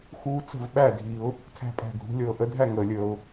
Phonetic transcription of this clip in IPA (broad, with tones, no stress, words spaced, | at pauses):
xuː˦t͡sə̤˥˨vɓæ˥˨dʱi˨˩˦ʊ̯ | tʰæ̤˦pʼæ̤˧˩ɡʱṳ˨˩˦ lʲɤː˩ʔə˨˥dʱæ˥˨ ŋəː˩lʲəː˩ʊ̯